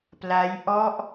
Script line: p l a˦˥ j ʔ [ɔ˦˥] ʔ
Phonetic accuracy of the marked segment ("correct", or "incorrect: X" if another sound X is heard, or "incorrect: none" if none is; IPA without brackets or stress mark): correct